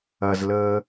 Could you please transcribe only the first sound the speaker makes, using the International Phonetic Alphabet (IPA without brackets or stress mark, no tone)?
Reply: ɐ